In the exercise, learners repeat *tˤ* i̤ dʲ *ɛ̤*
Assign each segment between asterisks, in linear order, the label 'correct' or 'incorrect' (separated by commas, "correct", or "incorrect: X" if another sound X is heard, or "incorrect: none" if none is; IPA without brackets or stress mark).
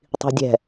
correct, correct